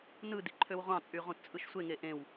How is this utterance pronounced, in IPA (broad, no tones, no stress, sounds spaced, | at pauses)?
n ɯ d i ǃʰ ø w ʁʷ ɑ̃ t͡sʼ y ʁ ũ t t͡sʼ ɯ ʃ sʷ e ŋ e ʔ ẽ w